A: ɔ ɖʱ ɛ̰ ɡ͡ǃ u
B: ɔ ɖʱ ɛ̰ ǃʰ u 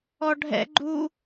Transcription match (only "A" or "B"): A